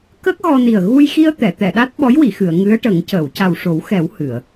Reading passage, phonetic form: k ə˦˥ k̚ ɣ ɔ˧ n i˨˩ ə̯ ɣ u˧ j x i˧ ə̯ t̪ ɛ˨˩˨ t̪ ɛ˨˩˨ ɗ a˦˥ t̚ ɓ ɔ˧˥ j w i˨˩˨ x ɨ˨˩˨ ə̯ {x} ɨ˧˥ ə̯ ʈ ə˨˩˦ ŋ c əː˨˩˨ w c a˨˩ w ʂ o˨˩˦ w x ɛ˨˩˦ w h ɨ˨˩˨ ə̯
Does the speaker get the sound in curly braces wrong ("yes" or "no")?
yes